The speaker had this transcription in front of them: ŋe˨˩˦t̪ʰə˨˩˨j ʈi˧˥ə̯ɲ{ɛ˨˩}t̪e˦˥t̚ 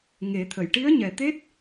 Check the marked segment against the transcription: correct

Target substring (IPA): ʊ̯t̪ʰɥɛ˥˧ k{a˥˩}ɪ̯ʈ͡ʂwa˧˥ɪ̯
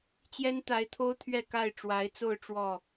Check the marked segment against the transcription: correct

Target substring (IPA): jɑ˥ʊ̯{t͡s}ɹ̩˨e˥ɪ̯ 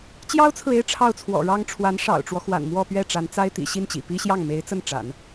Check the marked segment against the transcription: incorrect: t͡sʰ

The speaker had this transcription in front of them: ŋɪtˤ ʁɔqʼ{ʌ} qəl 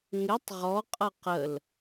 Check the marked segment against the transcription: correct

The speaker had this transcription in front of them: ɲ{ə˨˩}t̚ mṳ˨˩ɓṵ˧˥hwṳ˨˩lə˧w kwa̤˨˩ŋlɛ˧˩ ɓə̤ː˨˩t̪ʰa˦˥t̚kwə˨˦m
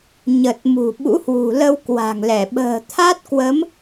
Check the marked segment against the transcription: correct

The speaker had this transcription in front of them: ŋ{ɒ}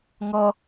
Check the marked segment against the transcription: incorrect: ʌ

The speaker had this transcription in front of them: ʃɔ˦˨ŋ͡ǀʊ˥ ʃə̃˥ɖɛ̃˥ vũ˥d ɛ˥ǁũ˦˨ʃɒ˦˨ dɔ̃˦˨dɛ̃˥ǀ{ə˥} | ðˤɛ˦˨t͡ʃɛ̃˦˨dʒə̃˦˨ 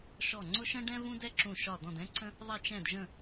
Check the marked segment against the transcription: incorrect: ə̃˥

